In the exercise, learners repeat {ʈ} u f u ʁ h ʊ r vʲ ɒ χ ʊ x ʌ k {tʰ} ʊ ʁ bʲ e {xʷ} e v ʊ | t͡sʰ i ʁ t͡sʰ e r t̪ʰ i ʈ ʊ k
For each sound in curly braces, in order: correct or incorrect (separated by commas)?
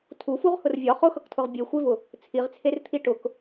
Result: incorrect, correct, correct